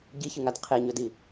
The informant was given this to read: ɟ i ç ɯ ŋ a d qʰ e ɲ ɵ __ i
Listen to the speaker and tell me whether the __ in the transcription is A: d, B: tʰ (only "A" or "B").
A